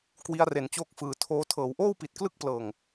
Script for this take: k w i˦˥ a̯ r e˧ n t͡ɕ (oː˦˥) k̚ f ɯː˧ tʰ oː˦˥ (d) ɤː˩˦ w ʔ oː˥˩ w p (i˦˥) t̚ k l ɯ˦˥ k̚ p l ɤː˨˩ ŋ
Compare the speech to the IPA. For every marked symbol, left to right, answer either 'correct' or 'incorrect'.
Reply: correct, incorrect, incorrect

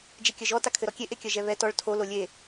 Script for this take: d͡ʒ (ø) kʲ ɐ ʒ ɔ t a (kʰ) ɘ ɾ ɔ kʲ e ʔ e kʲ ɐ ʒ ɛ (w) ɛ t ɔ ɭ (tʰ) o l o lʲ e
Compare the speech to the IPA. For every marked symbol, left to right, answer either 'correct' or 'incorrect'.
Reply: incorrect, correct, incorrect, correct

